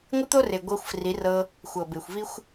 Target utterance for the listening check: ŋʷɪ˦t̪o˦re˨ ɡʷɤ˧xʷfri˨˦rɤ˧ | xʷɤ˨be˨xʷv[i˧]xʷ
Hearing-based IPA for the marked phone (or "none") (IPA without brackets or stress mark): i˧